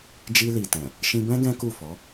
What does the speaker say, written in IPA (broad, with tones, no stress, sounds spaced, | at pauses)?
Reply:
d͡ʒ i˧ l i˨ t ɛ̃˨ | ʃ ĩ˧ b ɛ̃˦ ɡ ɛ̃˦ k u˦˨ f ɔ˨˦